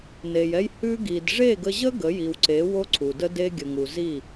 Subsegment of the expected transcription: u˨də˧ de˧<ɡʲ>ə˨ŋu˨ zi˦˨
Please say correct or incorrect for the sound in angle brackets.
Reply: correct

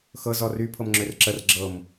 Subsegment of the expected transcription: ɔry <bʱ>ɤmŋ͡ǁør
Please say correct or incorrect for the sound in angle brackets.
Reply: incorrect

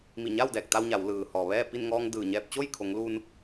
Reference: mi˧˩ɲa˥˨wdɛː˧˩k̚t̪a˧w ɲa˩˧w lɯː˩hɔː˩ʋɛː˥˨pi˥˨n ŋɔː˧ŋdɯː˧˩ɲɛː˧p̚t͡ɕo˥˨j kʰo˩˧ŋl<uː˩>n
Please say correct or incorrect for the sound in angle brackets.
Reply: incorrect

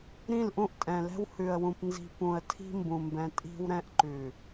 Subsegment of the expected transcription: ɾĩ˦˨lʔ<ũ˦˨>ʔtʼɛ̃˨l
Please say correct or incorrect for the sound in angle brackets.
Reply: incorrect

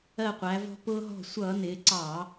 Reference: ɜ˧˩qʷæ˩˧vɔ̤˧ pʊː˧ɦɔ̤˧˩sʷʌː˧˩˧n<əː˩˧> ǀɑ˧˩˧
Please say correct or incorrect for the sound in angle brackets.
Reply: incorrect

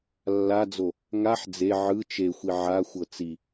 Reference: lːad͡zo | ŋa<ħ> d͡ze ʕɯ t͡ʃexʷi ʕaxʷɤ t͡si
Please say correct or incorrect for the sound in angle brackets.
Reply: correct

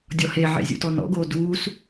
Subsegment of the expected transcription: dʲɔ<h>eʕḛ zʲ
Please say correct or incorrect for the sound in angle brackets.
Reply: correct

